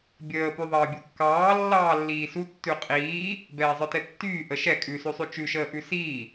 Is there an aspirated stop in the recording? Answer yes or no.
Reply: no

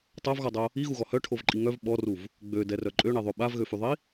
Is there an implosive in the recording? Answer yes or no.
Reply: yes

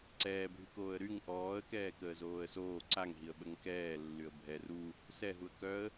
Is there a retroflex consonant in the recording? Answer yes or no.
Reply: no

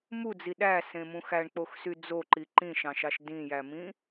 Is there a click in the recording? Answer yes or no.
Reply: yes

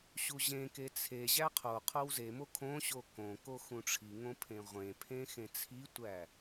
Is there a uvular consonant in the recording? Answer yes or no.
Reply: yes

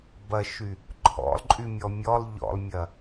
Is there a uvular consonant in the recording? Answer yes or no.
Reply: no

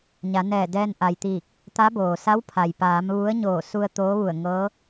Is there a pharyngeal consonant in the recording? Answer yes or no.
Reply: no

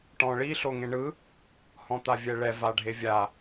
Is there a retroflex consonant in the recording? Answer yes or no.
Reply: yes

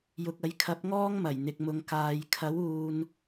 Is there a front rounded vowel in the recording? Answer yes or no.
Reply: no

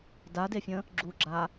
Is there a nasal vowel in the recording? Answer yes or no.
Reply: yes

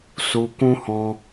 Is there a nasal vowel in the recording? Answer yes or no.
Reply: yes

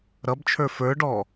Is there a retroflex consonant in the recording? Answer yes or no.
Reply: yes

